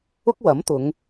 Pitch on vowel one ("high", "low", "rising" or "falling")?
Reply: high